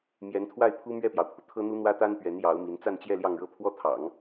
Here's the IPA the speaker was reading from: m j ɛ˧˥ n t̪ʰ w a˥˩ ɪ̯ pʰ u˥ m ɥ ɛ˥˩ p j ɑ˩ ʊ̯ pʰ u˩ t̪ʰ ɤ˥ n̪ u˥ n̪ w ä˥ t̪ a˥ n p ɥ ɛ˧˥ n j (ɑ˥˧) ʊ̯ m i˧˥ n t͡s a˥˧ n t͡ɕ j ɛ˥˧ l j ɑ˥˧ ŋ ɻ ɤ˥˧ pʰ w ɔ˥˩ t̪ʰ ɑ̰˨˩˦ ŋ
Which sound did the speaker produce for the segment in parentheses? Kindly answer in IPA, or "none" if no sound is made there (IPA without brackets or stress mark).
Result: ɑ˧˥